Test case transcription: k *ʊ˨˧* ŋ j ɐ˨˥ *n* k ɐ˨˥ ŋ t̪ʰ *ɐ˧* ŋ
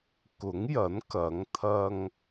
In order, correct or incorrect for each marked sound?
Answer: incorrect: ʊ˨˥, correct, correct

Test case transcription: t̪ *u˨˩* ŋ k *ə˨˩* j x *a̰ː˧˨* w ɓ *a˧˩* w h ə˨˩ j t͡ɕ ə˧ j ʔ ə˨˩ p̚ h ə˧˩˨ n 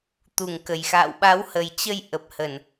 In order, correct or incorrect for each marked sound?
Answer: correct, correct, correct, incorrect: a˨˦

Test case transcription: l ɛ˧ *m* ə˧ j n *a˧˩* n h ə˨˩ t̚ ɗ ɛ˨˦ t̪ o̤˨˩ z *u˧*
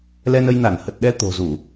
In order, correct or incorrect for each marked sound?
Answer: incorrect: n, correct, incorrect: u˧˩˨

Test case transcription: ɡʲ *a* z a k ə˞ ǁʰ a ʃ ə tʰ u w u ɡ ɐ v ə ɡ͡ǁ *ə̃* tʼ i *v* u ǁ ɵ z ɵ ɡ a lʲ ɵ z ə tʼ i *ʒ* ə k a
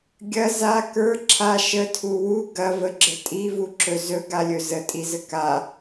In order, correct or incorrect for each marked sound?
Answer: incorrect: ɐ, incorrect: ə, correct, incorrect: z

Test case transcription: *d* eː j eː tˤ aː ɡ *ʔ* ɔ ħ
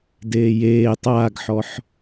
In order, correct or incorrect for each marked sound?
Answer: correct, incorrect: ħ

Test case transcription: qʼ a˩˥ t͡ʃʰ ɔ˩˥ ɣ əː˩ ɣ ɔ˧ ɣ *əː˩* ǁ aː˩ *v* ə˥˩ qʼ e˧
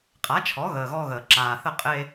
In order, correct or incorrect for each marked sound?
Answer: correct, incorrect: θ

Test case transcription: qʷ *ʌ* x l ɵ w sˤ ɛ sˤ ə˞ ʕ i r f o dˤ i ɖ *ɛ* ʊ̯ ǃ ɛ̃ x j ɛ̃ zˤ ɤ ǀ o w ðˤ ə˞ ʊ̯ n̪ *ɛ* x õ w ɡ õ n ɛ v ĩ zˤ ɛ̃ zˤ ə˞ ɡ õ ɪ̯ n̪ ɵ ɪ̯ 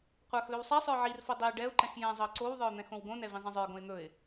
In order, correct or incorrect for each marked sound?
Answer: incorrect: ə˞, correct, incorrect: ɛ̃

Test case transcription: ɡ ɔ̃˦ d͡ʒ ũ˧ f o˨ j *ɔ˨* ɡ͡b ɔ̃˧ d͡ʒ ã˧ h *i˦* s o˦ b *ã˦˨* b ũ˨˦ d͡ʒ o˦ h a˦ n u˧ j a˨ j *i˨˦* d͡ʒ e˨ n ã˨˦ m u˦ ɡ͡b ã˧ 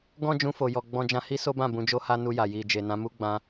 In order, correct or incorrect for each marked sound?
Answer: correct, correct, correct, incorrect: i˨

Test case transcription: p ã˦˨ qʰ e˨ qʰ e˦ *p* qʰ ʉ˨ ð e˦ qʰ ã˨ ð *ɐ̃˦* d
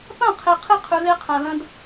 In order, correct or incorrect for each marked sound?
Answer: incorrect: none, correct

